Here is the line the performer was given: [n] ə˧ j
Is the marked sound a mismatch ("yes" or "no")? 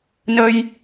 no